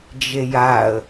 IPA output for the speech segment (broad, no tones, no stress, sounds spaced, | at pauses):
d͡ʒ e j a ə̯